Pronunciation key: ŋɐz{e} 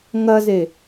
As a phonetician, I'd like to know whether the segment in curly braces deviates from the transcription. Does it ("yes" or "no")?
no